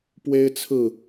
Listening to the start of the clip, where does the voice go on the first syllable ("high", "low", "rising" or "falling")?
high